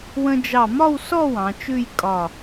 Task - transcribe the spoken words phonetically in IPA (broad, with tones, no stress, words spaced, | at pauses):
wə̃˧d͡ʒɑ˧˩mɒ˥˧w sɔ˥˧ wɑ̃˩˧t͡ʃʉ˥˧jkʼɒ˧˩